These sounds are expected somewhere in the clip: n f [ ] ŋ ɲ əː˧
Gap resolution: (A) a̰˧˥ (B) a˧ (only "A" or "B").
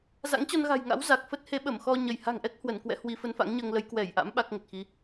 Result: A